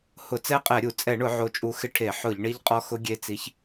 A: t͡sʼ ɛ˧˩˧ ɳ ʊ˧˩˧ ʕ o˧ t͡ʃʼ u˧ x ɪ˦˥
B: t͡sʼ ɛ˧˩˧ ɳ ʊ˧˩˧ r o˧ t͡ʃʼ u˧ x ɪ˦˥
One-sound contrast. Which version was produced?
A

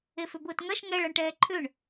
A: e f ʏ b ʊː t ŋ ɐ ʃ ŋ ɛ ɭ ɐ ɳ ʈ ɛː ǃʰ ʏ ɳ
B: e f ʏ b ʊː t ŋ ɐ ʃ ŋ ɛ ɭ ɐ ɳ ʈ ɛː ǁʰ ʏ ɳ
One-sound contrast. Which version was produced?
A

